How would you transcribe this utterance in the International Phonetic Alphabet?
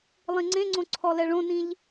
lˠĩŋ͡ǀẽŋ͡ǀõ ǀʰɔlɛɭõnĩʎ

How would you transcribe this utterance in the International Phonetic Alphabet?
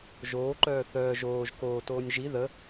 ʒoːǃœː θœːʒ oːʒ koːtoːnʲ ʒi ðə

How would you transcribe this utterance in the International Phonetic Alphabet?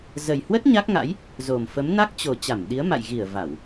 zə˨˩jhwə˦˥t̚ ɲa˦˥k̚ŋa̰˧˥j | zo˨˩mfə˨˦m na˦˥k̚t͡ɕo˨˩ t͡ɕa˧˩mɗi˨˦ə̯ma̰˧˨j ɣi˧˩ə̯ va˧˩˨w

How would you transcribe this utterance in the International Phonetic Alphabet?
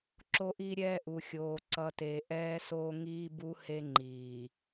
ǁo˦ʔi˦ɾʲɛː˦ ʔu˨ xʲoː˨ǀʌ˨te˨ ʔɛː˦soː˦ŋiː˦bu˦ he˦ŋ͡ǃiː˨

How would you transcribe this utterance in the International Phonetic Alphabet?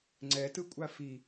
ŋ͡ǀɛtɯkʷʼa fi

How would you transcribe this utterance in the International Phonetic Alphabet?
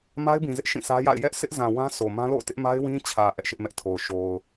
ma˦ɪ̯bĩ˨zɪ˦ʔ ʃĩ˦˨sä˦ja̰˦˨ɪ̯ jɛ˦ʔ sʰɪ˦ʔzã˨wã˦ sʰo˨ mã˦lo̰˦˨ʊ̯tɪ˦ʔ ma˦ɪ̯wĩ˦t͡ɕʰä˨ ʔɛ˦ʔʃɪ˦ʔmɛ˦ʔ tʰo˨ʊ̯ʃo˨ʊ̯

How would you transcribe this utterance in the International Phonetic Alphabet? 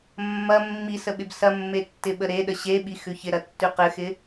mːɐ mːisəɓɪb sɐmːetːɪɓə ɾeɗə ɕeɓixʉ çɪɾɐtːʉ qɘxɪ

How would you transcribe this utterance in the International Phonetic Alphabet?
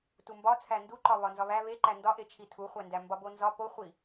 tumbɒ t͡sʰænduǃɒ βɒnzɒβæ βeǃæ ndɒʔet͡ʃʰi tʰuχʷændæ mbɒbonzɒ poχʷi

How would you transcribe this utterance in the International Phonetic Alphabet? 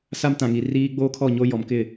sa˦mtã˨ŋi˨ riː˦ ɡ͡boː˦kʰɔ˦˨ɲo˦ jɔ˨mkɪ˦˨

